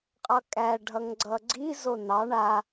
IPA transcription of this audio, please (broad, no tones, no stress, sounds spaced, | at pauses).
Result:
qʼ ʌ kʼ æ ɖʱ ʌ ŋ ɡ͡ǀ ʌ ɡ͡ǀ i z o n ɑ ɳ a